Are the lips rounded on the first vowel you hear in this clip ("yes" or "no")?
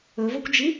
yes